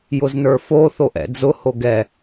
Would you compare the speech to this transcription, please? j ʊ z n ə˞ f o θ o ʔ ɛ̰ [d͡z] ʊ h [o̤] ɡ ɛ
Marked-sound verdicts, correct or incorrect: correct, incorrect: o

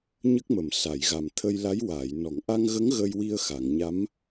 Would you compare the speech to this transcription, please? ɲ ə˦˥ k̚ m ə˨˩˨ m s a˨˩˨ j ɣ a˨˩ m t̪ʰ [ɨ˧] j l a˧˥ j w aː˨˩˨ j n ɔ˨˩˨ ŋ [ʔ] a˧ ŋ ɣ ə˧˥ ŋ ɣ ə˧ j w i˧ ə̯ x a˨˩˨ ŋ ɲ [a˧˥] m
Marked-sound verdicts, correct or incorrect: incorrect: ə˧, correct, correct

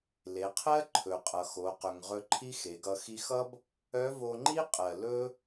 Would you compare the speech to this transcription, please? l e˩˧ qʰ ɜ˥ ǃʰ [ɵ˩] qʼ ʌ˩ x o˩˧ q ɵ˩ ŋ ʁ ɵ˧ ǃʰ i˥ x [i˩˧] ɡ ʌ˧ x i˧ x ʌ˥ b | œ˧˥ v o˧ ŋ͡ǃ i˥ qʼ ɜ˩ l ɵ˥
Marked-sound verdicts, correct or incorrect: correct, incorrect: e˩˧

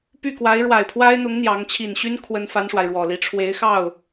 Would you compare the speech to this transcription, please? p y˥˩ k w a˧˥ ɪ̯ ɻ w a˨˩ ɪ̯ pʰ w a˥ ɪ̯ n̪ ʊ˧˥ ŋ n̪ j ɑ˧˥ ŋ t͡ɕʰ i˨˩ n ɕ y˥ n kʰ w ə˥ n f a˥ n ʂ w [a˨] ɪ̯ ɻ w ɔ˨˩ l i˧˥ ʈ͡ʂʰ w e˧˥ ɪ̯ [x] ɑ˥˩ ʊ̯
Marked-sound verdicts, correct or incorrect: correct, correct

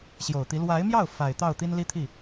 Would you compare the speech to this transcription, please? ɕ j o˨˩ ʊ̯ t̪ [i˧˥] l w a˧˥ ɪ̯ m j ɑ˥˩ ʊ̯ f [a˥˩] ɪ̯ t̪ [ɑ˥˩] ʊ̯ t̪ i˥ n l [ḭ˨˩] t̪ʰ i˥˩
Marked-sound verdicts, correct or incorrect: correct, incorrect: a˨˩, correct, incorrect: i˥

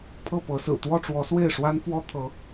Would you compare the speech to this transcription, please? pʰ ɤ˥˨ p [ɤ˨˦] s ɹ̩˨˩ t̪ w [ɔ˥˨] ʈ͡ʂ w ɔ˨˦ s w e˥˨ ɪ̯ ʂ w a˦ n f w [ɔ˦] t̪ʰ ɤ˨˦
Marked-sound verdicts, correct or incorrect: correct, correct, correct

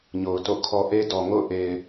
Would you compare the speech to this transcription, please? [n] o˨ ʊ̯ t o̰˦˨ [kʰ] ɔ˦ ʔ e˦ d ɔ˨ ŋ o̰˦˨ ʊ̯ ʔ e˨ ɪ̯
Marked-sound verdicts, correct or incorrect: incorrect: ɲ, correct

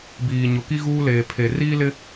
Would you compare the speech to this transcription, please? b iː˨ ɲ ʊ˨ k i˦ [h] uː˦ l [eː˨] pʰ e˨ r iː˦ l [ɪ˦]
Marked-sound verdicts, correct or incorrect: incorrect: ɣ, correct, correct

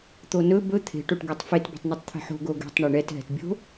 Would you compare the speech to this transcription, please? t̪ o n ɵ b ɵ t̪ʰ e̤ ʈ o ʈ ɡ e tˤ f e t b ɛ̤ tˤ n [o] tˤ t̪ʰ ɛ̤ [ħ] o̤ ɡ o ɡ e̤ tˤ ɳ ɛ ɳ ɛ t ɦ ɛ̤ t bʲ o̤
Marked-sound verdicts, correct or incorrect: incorrect: ɵ, correct

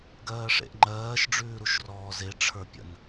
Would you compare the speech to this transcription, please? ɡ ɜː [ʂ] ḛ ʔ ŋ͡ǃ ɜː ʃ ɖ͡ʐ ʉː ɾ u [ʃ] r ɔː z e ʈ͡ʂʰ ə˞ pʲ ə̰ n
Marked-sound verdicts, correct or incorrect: correct, correct

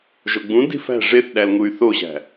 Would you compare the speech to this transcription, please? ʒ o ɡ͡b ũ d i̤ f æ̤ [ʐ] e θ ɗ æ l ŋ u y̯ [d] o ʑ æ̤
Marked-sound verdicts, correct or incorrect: correct, incorrect: θ

